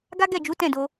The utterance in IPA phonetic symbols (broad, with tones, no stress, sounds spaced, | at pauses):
ɡ a˦ ɡ ɛ˦˨ d͡ʒ u˨˦ t ɛ̃˦˨ d o˧